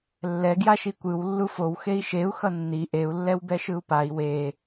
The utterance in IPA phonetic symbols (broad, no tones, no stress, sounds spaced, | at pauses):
lː ɛ ɡ j a ʃ i kʷ ɯ w lː u f o w x e i̯ ʃ e u̯ x ʌ nː i ʔ e u̯ lː ɛ w b ɛ ʃ ɯ u̯ p a i̯ w e